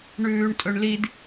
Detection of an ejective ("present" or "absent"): present